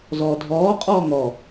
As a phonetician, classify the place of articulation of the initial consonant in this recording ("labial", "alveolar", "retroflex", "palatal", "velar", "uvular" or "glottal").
alveolar